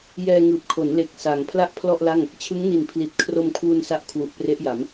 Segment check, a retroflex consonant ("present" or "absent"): absent